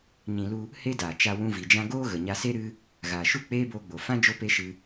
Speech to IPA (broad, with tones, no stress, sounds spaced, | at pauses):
ɲ ĩ˧ l u˦ | h e˦ d aː˨ t͡ʃ a˧ w ũ˧ v i˨ d͡ʒ ã˦ ɡ oː˦ ɣ ə˨ ɲ a˧ s e˦ ɾ ɨ˦ | ɣ aː˨ ʃ u˦˨ k͡p eː˦ b oː˧ ɡ͡b o˨ f ã˦ d͡ʒ o˦ p e˦ ʃ ɨ˧